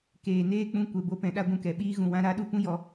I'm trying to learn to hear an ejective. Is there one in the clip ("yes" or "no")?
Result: no